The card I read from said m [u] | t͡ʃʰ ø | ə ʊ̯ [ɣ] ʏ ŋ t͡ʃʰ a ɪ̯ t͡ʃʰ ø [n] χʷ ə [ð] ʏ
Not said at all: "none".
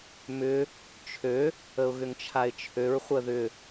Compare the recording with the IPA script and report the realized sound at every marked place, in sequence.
ʏ, ɣ, ɹ, ð

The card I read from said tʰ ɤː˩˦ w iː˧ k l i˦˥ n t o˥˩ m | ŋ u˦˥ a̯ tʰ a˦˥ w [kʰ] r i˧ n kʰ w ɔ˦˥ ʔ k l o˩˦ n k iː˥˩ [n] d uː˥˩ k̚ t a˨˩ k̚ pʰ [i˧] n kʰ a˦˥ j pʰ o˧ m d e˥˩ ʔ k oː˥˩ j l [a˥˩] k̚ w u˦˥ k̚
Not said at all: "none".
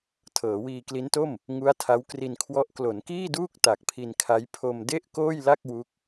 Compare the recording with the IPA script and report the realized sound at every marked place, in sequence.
k, none, i˧, a˥˩

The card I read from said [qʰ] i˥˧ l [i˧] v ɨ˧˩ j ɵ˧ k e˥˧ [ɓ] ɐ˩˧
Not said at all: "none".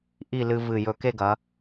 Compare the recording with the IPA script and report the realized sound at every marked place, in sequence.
ʔ, ɨ˧, ɡ

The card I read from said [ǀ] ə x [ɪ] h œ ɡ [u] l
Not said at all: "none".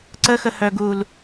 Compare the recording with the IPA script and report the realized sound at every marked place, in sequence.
ǀ, ə, u

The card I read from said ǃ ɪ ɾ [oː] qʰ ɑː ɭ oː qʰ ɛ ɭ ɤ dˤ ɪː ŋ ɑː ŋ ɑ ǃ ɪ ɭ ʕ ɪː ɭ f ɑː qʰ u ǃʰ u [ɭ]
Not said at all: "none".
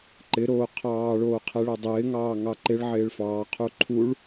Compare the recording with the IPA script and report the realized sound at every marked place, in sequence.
oː, ɭ

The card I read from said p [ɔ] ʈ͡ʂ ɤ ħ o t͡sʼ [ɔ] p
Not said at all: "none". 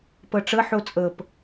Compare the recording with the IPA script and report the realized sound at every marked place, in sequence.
ɤ, ɤ

